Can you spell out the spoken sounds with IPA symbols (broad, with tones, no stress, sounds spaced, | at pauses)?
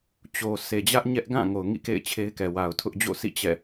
t͡ɕ o˨ sʰ e˨ d͡ʑ ä˦ ʔ ɲ ɛ˦ ʔ ɡ ã˦˨ ŋ o˨ ʊ̯ ŋ ḭ˦˨ k ḛ˦˨ ɪ̯ t͡ɕʰ e˦ ɪ̯ k ɛ˨ w a˨ ʊ̯ tʰ ʊ˦ ʔ d͡ʑ o̰˦˨ sʰ ḭ˦˨ t͡ɕ ɛ̰˦˨